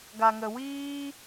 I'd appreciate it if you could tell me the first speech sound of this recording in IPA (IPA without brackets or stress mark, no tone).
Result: ɡ